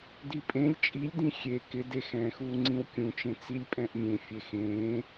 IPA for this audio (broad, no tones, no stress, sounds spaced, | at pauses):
d i pʼ ẽ lʲ t͡ʃʼ i lʲ d ĩ xʲ e k ɪ d e x ɛ̃ː x uː ŋ͡ǀ ĩ w kʲ ũ t͡ʃ ẽ t͡s i lʲ pʼ ɛ̃ ʔ mʲ ẽ fʲ e x ẽː